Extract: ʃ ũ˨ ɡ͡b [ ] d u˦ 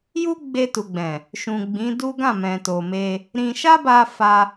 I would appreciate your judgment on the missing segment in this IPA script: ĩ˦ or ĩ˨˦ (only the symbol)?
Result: ĩ˨˦